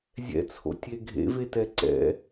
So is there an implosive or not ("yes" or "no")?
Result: no